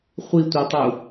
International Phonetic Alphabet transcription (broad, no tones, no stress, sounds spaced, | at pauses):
χʷ i tʷ ɜ tˤ u